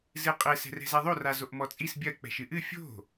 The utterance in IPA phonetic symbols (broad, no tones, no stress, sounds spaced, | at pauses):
z ɨ qʼ ɘ s ɛ̤ r ɛ̤ z ɛ ðˤ o r a z o ʔ m ɔ t͡sʼ i s bʲ ɐ k͡p ɛ̤ ʃ ɨ ʔ ɨ fʲ o̤